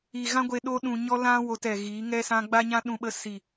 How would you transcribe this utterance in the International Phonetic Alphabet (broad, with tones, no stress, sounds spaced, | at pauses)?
i˨ ɣ ã˦ ɡʷ e˧ ɗ o˧ ɗ ũ˨ ɲ ɔ˧ l ã˦ w o˧ t ɛ˨ ɣ iː˨˦ ŋ ɛ˧ s ã˧ ɡ͡b a˦ ɲ ã˦ ɗ ũ˧ ɓ ə˧ s i˨